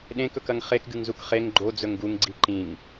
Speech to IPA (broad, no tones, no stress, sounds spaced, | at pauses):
ɗ ẽ k ɵ k ɐ ŋ χ e k ɡ ɨ ŋ z u k χ e ŋ ɡ͡ǃ o d͡z ɵ ŋ ɡ u ŋ ɡ͡ǀ i ǃ ĩ ŋ